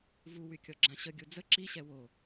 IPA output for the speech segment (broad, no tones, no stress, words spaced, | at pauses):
vuwykʲɔɡ͡ǁã ɕəɡʲu d͡zə ǁiɕɛ wo